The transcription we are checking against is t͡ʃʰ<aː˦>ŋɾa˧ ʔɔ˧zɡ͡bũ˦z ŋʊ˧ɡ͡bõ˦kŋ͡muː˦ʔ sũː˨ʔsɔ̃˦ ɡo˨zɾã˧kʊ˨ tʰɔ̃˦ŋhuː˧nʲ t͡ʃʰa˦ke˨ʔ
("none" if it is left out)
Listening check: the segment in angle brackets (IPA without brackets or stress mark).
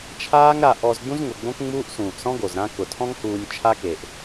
aː˦